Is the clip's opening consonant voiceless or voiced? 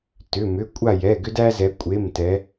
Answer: voiceless